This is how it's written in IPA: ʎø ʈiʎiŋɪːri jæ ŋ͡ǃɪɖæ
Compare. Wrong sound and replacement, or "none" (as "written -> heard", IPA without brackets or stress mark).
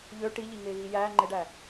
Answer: r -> ɣ